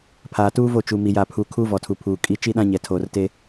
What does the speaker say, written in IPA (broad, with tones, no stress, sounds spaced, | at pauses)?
pʰ aː˨ t uː˦ v o˦˨ t͡ʃ u˨ m i˨ j a˨ pʰ u˨ kʰ uː˦ v ɔ˨ tʰ u˨ pʰ uː˨ kʼ i˨˦ t͡ʃ i˦ ɗ ã˦ ɲ ɛ˨ tʰ oː˨ r t e˦